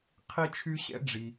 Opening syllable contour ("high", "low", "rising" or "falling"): high